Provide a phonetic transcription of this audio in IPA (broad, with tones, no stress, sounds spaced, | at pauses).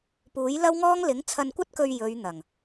p uː˨˥ j l ɐ˥ w ŋ ɔː˥ ŋ l ɪ˨˥ ŋ t͡sʰ ɐ˧ n kʷ ɐ˥ t̚ k ɵ˧ ɥ j ɵ˨˧ ɥ n̪ ɐ˨˩ ŋ